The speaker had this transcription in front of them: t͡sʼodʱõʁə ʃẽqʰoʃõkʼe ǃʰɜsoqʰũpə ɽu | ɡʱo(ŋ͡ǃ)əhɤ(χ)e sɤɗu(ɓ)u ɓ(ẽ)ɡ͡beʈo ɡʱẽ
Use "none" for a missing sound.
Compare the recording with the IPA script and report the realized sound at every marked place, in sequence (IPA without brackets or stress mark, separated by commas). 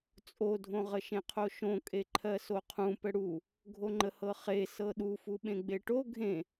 ŋ͡ǃ, χ, f, ẽ